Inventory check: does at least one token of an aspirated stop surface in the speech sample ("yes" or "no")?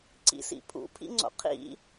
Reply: yes